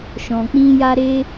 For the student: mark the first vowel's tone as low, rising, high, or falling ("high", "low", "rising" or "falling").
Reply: low